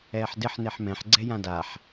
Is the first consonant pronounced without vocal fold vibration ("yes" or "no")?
yes